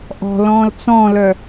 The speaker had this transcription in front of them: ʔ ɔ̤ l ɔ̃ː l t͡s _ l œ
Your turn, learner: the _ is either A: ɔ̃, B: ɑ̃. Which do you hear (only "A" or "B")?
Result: A